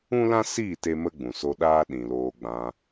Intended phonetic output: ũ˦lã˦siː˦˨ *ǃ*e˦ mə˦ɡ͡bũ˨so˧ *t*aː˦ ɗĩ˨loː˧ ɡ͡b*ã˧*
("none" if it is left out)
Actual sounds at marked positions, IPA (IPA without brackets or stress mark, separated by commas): t, ɗ, ã˧